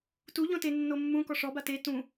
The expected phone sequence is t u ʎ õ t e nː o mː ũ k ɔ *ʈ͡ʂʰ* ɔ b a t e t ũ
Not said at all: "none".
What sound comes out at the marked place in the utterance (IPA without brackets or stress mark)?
ʂ